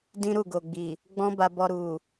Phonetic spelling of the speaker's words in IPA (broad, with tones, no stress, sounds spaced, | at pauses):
d ĩ˦ ɾ u˦˨ ɡ o˨ ɡ͡b i˨ | ɡ͡b ɔ̃˦ b a˧ b ɔ˧ ɾ u˨